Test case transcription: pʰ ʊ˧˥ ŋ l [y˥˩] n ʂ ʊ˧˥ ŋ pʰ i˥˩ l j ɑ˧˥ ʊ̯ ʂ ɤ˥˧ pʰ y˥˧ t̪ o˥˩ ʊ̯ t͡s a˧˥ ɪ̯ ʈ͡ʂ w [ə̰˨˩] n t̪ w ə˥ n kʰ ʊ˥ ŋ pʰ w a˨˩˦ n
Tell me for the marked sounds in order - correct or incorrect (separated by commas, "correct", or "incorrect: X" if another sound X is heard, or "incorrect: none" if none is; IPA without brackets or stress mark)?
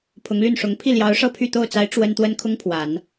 correct, incorrect: ə˥